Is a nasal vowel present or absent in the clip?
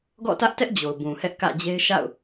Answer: present